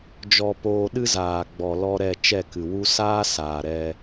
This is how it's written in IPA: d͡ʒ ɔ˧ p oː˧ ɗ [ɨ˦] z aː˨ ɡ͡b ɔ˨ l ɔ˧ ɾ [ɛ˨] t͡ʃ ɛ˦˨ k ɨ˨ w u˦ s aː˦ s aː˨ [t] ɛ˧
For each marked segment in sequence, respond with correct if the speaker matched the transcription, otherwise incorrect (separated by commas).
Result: correct, incorrect, incorrect